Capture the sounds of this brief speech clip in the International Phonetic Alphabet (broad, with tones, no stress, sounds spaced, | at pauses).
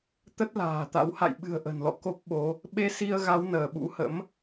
t̪ ə˦˥ t̚ l a̤ː˨˩ t̪ a̰˧˥ w h a̰˧˨ j ɓ ɨ̤˨˩ ə̯ ʔ ə̤˨˩ n l ɔ̰˧˨ k o˦˥ p̚ ɓ o˨˦ | ɓ e˧ s i˧ ə̯ ɣ a˨˦ w n əː˧˩ ɓ ṵ˧˥ h ə̰˧˥ m